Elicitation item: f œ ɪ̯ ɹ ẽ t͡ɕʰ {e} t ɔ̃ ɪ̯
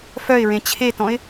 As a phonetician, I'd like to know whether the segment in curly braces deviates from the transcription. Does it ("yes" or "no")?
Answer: no